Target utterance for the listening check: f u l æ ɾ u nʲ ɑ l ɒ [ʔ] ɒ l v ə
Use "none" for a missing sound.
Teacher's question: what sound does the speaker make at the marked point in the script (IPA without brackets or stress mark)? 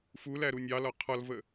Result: qʰ